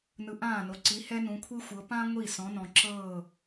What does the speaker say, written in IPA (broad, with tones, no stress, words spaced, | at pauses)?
nɯ˩˧ʔãː˧˩no˩ǀi˩˧ hɛ˦nũ˩˧kʷʰi˦xʷɤ˩˧ pã˦ŋʷi˧˩ sɔ̃˩˧nɔ̃˩ǁɤː˧˩